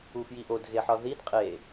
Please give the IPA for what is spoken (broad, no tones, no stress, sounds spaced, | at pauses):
u f j i ʔ o d ɣ e ħ ɒ ð i d qʼ e